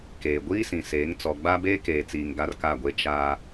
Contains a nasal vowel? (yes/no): yes